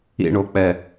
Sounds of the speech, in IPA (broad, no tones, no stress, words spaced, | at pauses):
ḭɳok͡pɛ